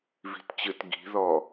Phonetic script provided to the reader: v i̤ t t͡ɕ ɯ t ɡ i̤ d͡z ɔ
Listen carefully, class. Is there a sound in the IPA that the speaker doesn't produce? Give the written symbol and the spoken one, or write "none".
d͡z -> ð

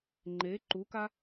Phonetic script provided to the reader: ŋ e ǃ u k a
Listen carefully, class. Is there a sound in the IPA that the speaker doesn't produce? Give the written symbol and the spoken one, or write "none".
ŋ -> ŋ͡ǃ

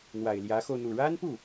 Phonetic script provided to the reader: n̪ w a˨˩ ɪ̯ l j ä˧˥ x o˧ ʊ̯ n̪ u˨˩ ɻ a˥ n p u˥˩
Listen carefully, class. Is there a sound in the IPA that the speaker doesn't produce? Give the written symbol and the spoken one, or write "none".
none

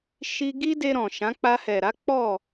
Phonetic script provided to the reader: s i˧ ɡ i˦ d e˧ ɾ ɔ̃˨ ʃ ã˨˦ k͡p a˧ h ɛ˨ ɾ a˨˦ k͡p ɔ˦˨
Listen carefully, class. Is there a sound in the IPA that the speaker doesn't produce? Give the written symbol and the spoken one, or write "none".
s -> ʃ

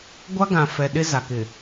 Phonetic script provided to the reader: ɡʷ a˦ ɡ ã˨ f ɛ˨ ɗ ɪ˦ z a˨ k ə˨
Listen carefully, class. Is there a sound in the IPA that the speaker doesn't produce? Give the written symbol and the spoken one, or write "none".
ə˨ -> ɪ˨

